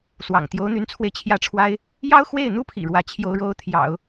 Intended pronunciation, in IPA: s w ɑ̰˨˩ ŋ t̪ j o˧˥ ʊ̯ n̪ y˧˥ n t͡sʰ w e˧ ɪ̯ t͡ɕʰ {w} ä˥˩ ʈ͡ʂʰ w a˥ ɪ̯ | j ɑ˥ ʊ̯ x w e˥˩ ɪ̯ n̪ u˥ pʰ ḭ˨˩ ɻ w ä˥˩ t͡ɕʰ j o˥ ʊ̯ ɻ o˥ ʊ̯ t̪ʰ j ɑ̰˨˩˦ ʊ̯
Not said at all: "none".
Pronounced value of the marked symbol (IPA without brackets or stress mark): j